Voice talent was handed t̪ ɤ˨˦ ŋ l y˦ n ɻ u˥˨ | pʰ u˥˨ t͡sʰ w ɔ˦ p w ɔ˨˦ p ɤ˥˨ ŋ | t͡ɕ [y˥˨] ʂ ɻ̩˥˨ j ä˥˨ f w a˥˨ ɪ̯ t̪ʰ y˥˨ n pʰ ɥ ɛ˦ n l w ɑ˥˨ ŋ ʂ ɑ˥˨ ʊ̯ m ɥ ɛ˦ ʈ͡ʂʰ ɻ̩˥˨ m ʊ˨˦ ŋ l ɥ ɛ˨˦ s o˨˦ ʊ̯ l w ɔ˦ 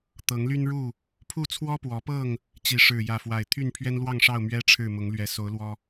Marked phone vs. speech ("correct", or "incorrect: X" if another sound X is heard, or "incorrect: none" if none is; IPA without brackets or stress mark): incorrect: i˥˨